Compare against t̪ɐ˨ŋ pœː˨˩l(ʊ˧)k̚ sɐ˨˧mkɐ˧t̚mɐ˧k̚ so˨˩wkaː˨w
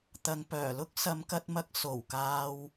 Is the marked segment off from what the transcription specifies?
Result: yes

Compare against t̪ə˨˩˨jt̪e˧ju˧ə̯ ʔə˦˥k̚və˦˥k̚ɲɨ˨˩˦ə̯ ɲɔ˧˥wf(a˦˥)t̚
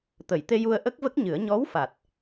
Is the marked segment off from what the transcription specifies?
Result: yes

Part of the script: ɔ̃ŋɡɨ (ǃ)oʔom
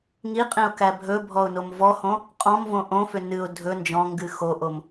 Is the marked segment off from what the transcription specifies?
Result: yes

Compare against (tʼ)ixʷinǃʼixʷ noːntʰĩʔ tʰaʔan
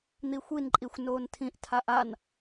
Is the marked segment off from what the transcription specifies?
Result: yes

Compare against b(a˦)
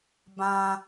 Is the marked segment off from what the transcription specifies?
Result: yes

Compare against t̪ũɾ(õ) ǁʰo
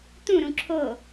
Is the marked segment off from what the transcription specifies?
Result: yes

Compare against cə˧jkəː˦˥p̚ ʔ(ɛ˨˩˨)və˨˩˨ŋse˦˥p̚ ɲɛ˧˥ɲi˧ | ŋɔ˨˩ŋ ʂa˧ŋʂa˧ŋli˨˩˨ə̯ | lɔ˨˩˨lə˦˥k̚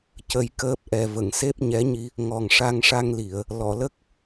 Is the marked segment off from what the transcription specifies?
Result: yes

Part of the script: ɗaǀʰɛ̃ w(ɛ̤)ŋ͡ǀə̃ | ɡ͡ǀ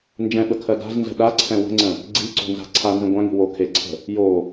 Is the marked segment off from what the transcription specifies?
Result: yes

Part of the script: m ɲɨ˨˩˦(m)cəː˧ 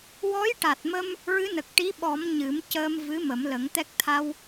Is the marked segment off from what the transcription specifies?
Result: no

